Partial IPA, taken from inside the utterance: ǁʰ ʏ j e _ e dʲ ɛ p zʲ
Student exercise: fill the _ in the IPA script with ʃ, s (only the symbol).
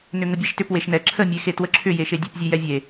ʃ